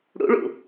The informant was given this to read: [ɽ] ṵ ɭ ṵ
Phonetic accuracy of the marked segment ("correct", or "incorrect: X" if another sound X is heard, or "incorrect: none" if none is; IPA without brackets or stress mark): correct